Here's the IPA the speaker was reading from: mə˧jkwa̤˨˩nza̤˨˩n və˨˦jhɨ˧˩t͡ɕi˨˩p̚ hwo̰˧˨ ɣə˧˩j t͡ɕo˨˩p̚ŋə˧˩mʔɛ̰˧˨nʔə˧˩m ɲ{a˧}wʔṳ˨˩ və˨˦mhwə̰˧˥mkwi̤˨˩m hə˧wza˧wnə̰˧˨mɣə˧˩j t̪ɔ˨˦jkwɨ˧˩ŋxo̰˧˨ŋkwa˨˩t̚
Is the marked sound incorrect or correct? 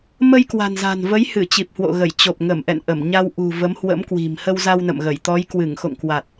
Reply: correct